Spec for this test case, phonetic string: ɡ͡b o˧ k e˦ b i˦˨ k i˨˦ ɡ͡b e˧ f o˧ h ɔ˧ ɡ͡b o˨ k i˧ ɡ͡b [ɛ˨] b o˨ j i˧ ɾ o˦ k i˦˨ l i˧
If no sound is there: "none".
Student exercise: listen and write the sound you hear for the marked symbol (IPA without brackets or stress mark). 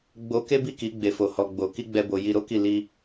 ɛ˧